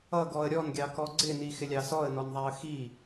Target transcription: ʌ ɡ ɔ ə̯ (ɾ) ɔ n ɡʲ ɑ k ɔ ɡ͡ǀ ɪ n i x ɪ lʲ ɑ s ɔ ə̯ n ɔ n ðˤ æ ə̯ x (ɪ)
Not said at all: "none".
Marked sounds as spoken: ɾʲ, i

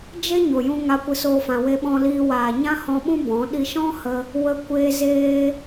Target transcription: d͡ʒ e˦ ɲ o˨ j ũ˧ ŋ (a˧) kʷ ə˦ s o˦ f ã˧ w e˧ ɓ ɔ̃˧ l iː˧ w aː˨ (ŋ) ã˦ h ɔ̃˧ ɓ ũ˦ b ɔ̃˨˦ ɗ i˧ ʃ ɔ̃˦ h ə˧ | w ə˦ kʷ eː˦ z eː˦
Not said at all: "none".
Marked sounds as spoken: a˧, ɲ

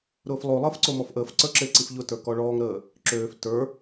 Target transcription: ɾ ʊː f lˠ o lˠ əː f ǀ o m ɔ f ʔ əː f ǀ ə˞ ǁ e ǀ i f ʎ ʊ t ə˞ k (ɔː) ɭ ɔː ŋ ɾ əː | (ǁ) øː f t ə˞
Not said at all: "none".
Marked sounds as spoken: ɔ, ǁ

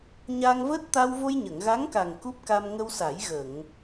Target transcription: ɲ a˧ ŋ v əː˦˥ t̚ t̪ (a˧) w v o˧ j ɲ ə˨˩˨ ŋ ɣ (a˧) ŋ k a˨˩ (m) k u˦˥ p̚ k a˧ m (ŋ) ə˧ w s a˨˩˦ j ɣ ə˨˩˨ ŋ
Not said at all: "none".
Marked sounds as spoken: a˧, a˧˥, ŋ, ŋ

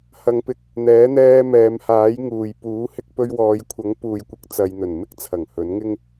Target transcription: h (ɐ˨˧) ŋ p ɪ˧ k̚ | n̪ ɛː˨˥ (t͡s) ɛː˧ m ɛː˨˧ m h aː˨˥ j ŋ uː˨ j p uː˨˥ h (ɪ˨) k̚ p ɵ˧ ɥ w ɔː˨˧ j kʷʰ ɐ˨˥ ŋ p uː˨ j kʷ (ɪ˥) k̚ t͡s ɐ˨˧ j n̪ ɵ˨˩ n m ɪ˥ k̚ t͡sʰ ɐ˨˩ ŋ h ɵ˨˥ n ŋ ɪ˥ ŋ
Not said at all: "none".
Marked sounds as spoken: ɐ˨˧, n̪, ɪ˧, ɪ˨˥

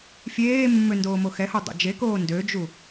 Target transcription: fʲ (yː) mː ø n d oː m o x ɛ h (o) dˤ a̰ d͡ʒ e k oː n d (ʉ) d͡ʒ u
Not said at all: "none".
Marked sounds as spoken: eː, o, ø

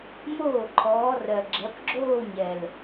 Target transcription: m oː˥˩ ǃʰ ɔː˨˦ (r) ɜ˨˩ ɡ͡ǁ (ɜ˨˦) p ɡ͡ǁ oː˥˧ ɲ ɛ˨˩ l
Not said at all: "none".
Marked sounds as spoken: r, ɜ˨˦

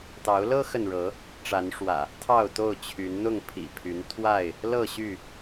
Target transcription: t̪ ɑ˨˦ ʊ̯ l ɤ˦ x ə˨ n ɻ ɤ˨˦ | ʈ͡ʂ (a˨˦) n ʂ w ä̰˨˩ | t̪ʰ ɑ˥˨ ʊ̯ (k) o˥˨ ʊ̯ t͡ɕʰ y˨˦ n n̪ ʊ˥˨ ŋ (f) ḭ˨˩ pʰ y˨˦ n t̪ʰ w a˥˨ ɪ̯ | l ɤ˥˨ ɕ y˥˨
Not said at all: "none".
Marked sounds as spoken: a˨˦, t̪, pʰ

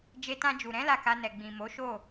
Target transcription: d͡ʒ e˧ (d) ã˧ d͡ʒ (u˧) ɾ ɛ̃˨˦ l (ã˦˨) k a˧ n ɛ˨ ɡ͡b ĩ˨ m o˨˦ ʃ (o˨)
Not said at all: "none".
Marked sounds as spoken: t, u˨, a˦˨, o˦˨

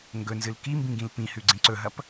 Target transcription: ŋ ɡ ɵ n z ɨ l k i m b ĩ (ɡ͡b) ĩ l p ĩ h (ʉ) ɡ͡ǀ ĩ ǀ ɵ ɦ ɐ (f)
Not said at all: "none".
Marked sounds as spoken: ɡ, ʉ, p

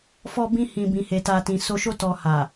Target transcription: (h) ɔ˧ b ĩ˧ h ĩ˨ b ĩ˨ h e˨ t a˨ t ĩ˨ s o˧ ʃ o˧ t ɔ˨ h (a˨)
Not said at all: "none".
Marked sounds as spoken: f, a˨

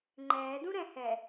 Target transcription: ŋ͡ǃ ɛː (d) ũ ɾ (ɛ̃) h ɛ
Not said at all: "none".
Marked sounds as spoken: d, ɛ̃

